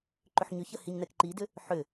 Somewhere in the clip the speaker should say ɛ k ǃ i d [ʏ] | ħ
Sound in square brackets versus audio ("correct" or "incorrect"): correct